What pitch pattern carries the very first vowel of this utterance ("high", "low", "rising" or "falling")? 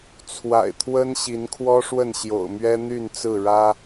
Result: low